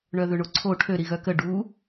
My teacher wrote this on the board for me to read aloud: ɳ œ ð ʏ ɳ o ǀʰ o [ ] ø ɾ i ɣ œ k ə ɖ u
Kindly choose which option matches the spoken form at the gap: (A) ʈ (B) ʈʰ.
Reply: B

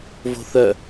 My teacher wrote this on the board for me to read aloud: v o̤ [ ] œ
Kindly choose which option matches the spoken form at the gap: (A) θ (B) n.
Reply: A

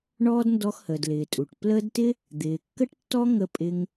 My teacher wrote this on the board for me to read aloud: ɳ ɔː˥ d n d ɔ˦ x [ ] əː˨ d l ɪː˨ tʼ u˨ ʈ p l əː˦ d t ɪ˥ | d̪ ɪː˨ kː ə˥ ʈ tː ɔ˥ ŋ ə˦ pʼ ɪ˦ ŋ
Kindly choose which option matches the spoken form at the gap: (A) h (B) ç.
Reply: A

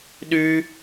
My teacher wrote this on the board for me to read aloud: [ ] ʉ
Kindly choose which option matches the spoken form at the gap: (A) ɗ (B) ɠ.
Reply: A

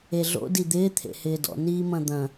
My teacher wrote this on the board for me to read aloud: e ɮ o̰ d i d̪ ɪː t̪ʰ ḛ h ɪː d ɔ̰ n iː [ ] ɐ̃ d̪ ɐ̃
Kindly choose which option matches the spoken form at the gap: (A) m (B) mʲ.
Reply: A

